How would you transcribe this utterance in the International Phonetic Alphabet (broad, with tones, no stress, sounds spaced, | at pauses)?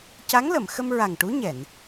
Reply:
c a˧˥ ŋ l ə˨˩˨ m x ə˧ m ɹ a˨˩ ŋ ʈ u˧˥ ɲ ɛ˨˩˨ n